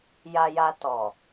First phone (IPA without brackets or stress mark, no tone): j